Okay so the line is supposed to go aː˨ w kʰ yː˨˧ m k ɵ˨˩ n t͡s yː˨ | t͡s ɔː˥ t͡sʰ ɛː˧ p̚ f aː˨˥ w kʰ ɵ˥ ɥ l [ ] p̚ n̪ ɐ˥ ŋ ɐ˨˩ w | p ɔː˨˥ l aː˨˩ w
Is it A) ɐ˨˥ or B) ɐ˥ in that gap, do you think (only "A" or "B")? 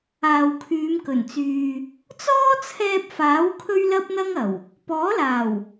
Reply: B